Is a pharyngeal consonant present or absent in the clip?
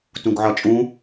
present